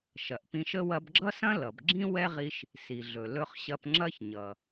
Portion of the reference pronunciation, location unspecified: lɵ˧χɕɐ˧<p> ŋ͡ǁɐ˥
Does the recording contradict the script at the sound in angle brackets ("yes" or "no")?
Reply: no